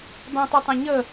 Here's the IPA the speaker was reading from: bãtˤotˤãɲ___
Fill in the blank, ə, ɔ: ə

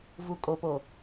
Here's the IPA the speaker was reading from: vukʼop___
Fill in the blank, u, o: o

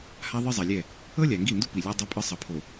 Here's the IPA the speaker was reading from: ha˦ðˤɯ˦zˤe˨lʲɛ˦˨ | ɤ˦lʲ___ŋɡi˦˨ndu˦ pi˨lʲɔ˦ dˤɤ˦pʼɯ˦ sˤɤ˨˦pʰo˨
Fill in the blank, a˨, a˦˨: a˨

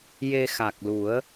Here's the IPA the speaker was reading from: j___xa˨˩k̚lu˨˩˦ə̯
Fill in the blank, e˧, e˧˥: e˧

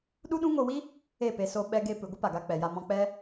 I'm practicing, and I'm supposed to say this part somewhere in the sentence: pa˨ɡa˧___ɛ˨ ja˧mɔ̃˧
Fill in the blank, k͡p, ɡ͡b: k͡p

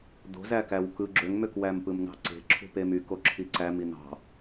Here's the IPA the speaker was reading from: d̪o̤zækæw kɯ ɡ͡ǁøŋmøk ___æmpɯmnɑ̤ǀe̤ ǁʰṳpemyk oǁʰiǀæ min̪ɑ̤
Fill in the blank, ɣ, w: w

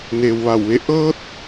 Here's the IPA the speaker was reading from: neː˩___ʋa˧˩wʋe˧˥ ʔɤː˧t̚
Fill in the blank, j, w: w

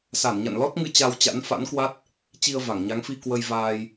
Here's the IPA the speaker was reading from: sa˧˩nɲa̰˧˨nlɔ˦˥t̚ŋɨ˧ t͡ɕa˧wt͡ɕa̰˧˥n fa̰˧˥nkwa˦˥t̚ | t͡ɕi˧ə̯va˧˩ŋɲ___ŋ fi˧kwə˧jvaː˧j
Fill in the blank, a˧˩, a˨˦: a˨˦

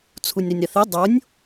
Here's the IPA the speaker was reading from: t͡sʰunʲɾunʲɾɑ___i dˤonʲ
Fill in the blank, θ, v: θ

